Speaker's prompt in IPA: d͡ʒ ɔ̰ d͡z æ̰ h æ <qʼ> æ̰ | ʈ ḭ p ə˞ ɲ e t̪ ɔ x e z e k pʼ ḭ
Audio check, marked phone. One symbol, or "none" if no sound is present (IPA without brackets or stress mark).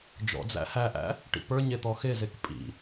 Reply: ʔ